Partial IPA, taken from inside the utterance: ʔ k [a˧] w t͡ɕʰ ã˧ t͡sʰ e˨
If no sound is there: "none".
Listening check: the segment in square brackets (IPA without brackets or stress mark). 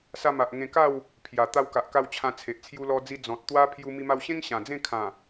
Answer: a˧